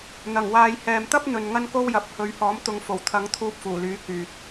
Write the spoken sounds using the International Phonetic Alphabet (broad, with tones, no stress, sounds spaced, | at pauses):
n̪ ɐ˨˩ ŋ w aː˨ j h ɛː˨ m t̪ ɐ˥ p̚ n̪ ɵ˨ n ŋ ɐ˥ n k o˥ w j ɐ˨˥ p̚ h ɵ˨˧ ɥ h ɔː˨˥ m t̪ ʊ˨˧ ŋ f o˨˩ w t̪ʰ ɐ˨˥ ŋ t̪ʰ uː˧ p̚ f uː˨˩ l yː˨˥ k yː˨ t̚